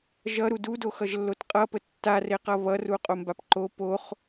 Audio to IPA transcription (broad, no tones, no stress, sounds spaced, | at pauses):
ʒ ʌ ɾ u d u d o x ʌ ʒ lː o t qʼ ʌ p ə tː a r e q ʌ β ʌ r u qʼ o m b a p ǃ o p o χ